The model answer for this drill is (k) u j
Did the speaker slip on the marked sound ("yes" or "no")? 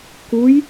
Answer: no